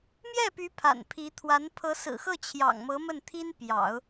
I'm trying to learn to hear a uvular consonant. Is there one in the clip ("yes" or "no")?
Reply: no